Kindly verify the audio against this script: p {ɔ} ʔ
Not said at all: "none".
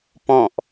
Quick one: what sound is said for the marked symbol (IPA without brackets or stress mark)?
ɔ̃